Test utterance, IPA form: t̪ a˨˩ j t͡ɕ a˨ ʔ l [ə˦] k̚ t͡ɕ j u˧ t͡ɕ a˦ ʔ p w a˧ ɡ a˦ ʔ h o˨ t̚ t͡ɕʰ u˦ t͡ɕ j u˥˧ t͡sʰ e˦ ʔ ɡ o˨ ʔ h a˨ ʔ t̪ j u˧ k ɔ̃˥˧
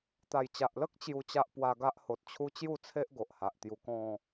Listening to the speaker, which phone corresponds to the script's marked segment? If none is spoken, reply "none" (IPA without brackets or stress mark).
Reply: ə˦